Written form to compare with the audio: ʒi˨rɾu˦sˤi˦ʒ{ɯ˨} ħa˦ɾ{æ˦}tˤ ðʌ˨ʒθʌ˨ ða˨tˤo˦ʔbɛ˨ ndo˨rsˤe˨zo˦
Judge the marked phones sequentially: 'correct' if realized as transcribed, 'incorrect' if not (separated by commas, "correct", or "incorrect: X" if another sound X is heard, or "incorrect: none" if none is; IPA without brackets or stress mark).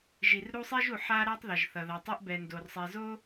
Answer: incorrect: u˨, incorrect: a˦